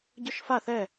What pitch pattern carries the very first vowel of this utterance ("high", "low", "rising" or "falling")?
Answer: high